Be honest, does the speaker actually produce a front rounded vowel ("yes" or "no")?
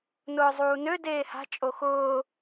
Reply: yes